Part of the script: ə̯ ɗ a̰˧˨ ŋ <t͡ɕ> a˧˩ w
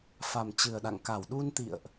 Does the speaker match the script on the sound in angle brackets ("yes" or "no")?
no